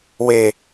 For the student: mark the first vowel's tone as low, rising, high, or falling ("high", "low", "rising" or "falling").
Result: falling